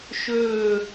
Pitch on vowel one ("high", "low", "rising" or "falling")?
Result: falling